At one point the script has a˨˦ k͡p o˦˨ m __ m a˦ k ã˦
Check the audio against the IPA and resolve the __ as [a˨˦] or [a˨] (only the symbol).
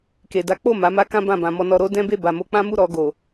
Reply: a˨˦